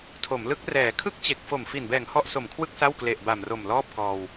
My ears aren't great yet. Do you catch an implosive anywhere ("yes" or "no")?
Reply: no